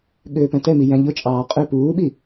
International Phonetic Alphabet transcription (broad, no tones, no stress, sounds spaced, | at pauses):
ɠ øː p æ̃ t ɛ m i j æ̃ ʎ ʊ t͡ʃʼ ɑː qʼ ø p uː ɓ i